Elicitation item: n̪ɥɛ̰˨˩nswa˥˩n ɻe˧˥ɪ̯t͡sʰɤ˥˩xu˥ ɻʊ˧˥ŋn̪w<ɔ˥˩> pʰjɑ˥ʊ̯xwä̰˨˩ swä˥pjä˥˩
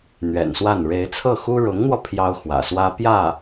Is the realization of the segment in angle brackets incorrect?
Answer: yes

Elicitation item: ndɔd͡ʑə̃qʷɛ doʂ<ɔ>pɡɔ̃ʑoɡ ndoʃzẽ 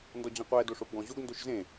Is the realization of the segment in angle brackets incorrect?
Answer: yes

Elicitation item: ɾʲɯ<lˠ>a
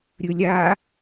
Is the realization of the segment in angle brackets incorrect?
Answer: yes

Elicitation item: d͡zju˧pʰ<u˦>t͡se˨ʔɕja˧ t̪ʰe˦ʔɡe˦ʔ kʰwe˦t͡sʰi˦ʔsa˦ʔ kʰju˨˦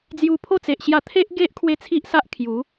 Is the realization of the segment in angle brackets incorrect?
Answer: yes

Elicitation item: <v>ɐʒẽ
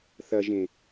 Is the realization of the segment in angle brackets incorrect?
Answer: yes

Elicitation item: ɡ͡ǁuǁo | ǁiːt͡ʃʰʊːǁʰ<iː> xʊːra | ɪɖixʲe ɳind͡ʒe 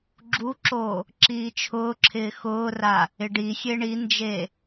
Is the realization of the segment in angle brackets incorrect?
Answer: yes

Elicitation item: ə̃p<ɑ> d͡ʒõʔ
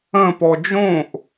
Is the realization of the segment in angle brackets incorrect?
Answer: yes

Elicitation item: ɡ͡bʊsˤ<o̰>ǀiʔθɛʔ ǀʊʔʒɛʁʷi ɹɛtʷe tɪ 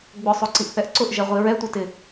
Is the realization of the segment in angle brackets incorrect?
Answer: yes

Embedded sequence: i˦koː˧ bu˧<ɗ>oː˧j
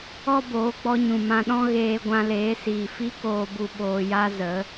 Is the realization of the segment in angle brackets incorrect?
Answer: yes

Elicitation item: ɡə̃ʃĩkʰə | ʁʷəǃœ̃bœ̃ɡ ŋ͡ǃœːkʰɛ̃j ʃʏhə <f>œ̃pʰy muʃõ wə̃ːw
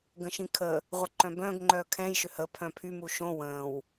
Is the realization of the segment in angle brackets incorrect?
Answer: yes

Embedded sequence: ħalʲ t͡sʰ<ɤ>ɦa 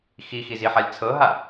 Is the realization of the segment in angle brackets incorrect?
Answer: no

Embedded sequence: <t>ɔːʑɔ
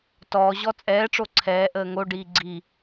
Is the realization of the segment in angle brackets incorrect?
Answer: no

